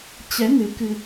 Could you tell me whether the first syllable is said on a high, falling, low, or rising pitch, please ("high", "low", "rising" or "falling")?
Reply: rising